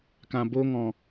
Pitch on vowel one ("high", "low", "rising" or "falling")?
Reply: low